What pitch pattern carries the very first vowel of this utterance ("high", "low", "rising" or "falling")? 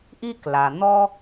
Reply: high